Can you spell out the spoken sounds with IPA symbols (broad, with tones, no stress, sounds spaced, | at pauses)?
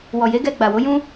w ɔ˨ j e˨˦ ɡ ɛ˧ ɡ͡b a˨ w o˨˦ j ũ˦